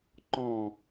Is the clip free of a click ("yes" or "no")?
no